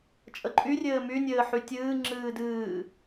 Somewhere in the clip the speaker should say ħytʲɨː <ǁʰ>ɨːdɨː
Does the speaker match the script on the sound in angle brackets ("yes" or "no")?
no